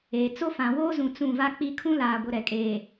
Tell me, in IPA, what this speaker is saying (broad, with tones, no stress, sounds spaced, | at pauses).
eː˨ t͡s o˦ f ã˨ w oː˦ z ũ˨ t͡s ũ˦˨ v a˦ k͡p i˦ kʰ ũ˦ l aː˨ ɡʷ ɪ˨ ɾ ɛ˨ kʼ eː˨